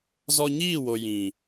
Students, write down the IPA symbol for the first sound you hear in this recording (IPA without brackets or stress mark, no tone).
z